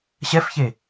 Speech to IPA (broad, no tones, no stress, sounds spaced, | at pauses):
ɕ ɛ f ç e